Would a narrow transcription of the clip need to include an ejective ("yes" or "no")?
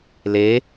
no